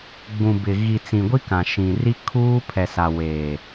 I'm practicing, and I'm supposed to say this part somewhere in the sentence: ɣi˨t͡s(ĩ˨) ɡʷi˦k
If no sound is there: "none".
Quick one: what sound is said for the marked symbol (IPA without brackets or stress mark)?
ĩ˨